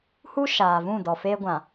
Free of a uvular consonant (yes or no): yes